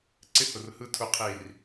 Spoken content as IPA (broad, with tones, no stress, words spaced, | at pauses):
ǀɪ˦hʊ˨rhɯ˦ tʰʊ˦qʰi˦˨r